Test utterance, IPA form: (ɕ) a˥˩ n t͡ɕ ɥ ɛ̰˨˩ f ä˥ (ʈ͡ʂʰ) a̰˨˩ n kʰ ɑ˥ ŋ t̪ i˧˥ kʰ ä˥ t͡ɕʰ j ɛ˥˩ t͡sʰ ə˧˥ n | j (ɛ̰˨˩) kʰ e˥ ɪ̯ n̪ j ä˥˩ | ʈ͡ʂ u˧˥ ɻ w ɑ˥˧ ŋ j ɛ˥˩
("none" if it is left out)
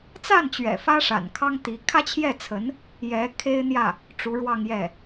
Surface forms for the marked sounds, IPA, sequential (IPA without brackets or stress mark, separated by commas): t͡s, ʂ, ɛ˧˥